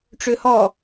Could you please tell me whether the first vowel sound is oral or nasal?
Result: oral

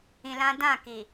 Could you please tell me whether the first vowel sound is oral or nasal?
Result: nasal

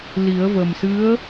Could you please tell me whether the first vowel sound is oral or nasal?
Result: oral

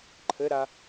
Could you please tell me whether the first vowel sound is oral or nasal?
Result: oral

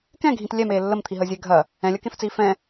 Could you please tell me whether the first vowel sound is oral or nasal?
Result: nasal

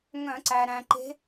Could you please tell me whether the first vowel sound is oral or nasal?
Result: nasal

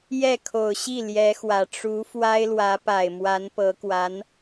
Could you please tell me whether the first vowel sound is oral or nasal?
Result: oral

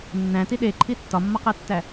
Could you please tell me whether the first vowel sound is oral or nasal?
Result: nasal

